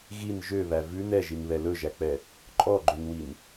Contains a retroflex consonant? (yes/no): no